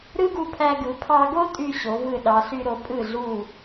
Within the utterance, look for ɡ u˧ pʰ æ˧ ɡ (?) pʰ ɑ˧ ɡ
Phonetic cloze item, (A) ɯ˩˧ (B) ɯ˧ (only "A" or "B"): A